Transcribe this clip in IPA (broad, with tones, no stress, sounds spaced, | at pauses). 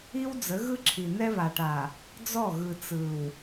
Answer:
i˦ w d͡z ə˨˦ ɣ ɯ˦ ǁʰ i˨ n ɛ˦ β a˨ ʈ a˨ | d͡z ɔ˦˨ ɣ ɯ˨ t͡s ɯ˨ w